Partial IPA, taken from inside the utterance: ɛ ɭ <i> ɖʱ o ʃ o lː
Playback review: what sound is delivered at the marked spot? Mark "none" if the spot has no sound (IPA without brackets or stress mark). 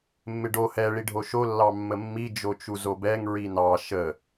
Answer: i